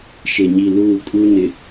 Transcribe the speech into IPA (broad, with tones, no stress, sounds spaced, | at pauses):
ʃ e˨ ɲ i˨ l uː˦˨ kʼ u˦ n ɪ˨